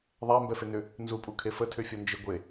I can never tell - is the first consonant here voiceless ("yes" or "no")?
no